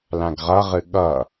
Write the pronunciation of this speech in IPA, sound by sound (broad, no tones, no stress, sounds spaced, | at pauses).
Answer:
l ã ɡ ʁ ʌ ʁ ɨ ɠ ʌ